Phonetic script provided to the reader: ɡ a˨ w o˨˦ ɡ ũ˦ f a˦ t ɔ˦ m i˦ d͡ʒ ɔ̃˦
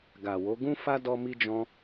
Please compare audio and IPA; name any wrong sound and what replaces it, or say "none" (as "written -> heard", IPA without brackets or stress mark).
t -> d